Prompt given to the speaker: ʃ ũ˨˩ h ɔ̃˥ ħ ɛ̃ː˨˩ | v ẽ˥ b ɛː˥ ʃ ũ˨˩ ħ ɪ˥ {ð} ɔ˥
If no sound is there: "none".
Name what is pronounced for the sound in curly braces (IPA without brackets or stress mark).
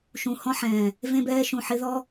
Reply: ð